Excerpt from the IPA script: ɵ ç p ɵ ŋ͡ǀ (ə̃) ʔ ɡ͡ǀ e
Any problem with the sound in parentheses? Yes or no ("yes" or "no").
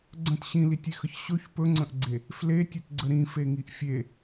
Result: no